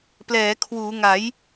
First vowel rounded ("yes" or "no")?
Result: no